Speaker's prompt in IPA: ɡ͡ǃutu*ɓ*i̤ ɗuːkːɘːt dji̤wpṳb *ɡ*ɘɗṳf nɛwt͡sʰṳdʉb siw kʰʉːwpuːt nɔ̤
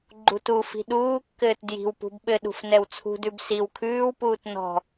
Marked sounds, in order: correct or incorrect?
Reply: incorrect, incorrect

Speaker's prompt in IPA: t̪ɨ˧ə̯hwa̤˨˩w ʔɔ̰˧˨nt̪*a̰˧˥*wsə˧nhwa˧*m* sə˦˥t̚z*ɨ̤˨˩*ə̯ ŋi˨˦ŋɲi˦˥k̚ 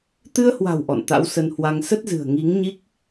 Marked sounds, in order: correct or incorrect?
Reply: correct, incorrect, correct

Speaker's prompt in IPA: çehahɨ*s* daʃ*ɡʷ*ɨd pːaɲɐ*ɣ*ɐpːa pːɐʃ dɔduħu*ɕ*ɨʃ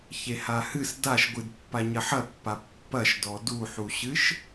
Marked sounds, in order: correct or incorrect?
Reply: correct, correct, incorrect, correct

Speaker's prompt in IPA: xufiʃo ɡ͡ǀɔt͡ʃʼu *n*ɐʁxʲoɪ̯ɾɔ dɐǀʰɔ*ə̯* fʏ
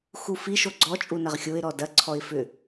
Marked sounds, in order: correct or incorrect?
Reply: correct, incorrect

